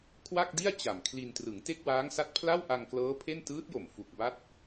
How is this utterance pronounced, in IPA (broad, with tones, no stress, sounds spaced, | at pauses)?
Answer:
kʰ w a˥˩ k̚ d i˥˩ a̯ t͡ɕ a˨˩ m kʰ l i˧ n t r ɯ˩˦ ŋ t e˥˩ k̚ w aː˦˥ ŋ s a˦˥ t̚ pʰ l a˥˩ w ʔ a˧ ŋ k l ɤː˦˥ pʰ e˥˩ n t ɯː˦˥ t̚ j o˨˩ m f u˨˩ k̚ b a˦˥ t̚